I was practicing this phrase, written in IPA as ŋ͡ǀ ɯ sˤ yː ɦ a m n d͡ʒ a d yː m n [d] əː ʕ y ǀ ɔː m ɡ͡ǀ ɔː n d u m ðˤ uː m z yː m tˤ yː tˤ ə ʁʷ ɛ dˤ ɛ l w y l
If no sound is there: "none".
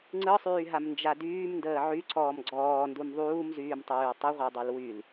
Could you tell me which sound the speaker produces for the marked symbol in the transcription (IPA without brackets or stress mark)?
d